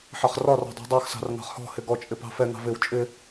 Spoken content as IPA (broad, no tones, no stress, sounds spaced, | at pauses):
ħ ɑ χ r ɒ r ɔ̤ dˤ ɛ̤ dˤ ɑ x s ɑ̤ r ŋ ɑ̤ χ h ɔ̤ h ɪ ɡ ɔ t͡ʃʼ ɪ p ɑ̤ f ɛ ŋ ɑ̤ v ɪ w t͡ʃʼ ɪ